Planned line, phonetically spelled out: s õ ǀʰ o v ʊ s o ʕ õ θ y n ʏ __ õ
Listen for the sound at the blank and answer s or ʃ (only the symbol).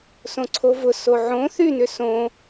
s